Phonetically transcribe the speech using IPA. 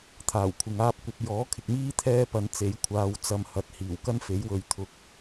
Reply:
t̪ʰ aː˨˩ w kʷʰ ɪ˨ ŋ aː˥ p̚ kʷ ɐ˨˥ p̚ j ɔː˨˥ kʰ ɪ˨ k̚ m iː˥ t̪ʰ ɛː˥ p ɐ˨˧ n t͡s e˨˥ j kʷʰ aː˧ w t͡s ɐ˧ m h ɐ˨˥ t̚ h iː˨˩ w k ɐ˥ n f e˨˥ j w ɵ˨˧ ɥ t̪ʰ ʊ˧ k̚

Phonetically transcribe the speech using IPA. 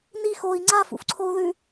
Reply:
n i x o i̯ ŋ͡ǀ a f ṵ f ǀʰ o u̯ ð ʉ

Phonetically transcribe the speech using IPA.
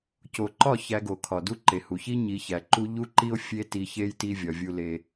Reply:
c o˨ ǃ ɒ˦˨ ç æ˧ ɡ o˨ kʰ ɒ˨ d u˦ ǃ e˨ h u˨ ç i˦ ɲ i˨˦ ç æ˨ ǃ u˦ ʎ u˦ ǃ i˦ o̯ fʲ e˦ t i˧ ç e˦ j t i˦ vʲ ɒ˧ vʲ u˦ l e˦

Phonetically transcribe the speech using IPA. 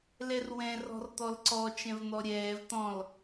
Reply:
l ɛ r w ɛ̃ r ɔ̤ r t̪ ɔ l ǀ ɔ t͡ʃ ɛ̃ v n̪ ɔ ɾʲ ɛː v t̪ ɔ̃ l

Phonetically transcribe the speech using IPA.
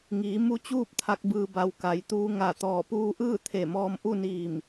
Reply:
ŋ iː˩˧ m u˧˥ t͡ɕ uː˥˨ p̚ t̪ʰ a˧ k̚ b ɯː˧ b a˧ w k a˩˧ j t̪ uː˧ ŋ a˧˩ t̪ ɔː˧˩ p uː˧ ʔ ɯː˥˨ t̪ʰ e˧˩ m ɔː˧ m ʔ u˥˨ n iː˧˩ m

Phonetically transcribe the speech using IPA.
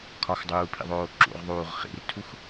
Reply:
kʰ ɒ x dˤ uː pʰ ḭ ðˤ oː ǁ ṵ ʁ ðˤ uː ʁ χ ḭ r tʰ u x

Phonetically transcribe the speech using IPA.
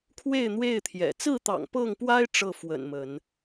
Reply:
kʰ w e˥˨ ɪ̯ n̪ w e˥˨ ɪ̯ t̪ʰ j ɛ̰˨˩ t͡s ɹ̩˥˨ t̪ ɑ̰˨˩ ŋ p ɤ˥˨ ŋ p w a˦ ɪ̯ ʈ͡ʂ ɤ˥˨ f w ə̰˨˩ n m ə˨˦ n

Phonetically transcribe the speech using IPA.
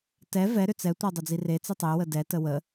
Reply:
t ɛ v ɛ ɾ ʏ t͡s ɛ tʷ ɛ dˤ ʏ d͡z i r e t͡s i tˤ e w ə d ɛ t ə w ə

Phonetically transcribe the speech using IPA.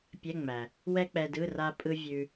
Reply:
pʲ ɛ˧˥˧ ŋ͡m æ˩ | w ɛ˥ k͡p ɛ˧ d ɯ˧˥˧ r a˥ pʼ ɯ˥ vʲ ʉ˧

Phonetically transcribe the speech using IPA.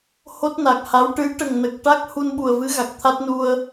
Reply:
h o˦˥ t̚ n a˨˩ k̚ h a˧˥ w ʈ ɨ˧˥ j ʈ ə˨˩ ŋ n ə˨˩ k̚ ʈ a˦˥ k̚ h u˧ n ɓ u˨˩ ə̯ v ɨ˧˥ ɣ a˨˩ k̚ t̪ʰ a˦˥ t̚ n u˧ ə̯

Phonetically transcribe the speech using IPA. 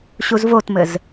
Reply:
ɕ u z v o t m ɘ z

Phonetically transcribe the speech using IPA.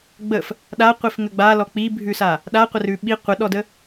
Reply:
ɡ͡b ə f | ɗ a qʷ i f ŋ ə ɡ͡b a l ɔ k͡p i bʱ ʉ s a | ɗ a qʷ ə r ʉ ɓ i qʷ ə ɗ ɔ d ə

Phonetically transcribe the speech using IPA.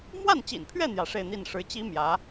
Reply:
m w a˥˩ n t͡ɕ ḭ˨˩ n pʰ ɥ ɛ˥˩ n̪ j ä˧˥ ʂ e˥˧ ɪ̯ n̪ i˥˩ n ʂ ɻ̩˧˥ t͡ɕ i˥ m j ä˧˥

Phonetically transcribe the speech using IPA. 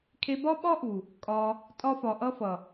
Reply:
kʰ e˧ b ɒ˦ ɓ ɒ˦ ʔ u˨ | kʼ ɒ˧ | tʼ ɒ˧ f ɒ˨ ʔ ʌ˧ f ʌ˨

